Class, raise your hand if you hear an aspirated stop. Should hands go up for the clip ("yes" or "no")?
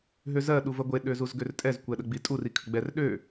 yes